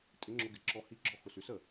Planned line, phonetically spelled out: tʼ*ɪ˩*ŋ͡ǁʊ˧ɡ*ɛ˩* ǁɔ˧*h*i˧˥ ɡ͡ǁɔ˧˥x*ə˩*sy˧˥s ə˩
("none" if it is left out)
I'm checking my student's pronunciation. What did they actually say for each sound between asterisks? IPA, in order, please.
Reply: ɪ˧˥, ɪ˩, h, ʊ˩

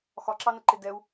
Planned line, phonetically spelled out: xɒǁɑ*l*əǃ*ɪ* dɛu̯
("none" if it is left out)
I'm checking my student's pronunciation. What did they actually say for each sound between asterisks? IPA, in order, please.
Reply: n, ɪ

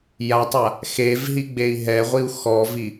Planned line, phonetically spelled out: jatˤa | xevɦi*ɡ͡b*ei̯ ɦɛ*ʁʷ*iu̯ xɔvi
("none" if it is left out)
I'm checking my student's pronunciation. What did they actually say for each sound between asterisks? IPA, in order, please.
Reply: ɡ͡b, ʁʷ

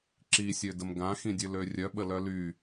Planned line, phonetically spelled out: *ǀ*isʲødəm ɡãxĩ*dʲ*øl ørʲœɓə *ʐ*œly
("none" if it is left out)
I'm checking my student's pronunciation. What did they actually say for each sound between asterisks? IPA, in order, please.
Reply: ǁ, dʲ, l

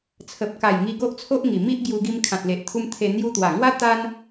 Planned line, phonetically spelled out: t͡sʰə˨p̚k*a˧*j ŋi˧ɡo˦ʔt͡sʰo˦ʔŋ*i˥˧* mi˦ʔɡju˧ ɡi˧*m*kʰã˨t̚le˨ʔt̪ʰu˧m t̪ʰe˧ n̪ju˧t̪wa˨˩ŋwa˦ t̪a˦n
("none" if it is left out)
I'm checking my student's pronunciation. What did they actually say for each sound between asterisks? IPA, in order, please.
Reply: a˨˩, i˨˩, m

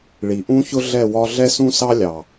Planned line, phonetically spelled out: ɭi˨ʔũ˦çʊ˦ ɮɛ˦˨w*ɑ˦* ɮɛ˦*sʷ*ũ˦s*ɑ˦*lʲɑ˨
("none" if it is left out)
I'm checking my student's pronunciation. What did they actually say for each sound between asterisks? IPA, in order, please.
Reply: ɒ˦, s, ɑ˦

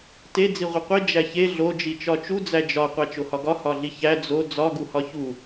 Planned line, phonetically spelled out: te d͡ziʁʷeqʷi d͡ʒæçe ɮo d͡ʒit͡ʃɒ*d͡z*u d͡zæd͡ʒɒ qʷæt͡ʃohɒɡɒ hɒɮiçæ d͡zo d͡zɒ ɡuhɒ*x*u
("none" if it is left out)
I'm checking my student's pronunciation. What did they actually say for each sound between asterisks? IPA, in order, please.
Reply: t͡ʃ, ç

